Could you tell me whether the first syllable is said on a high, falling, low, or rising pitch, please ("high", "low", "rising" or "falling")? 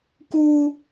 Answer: high